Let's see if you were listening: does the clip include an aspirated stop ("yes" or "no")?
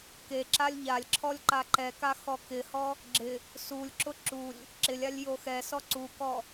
yes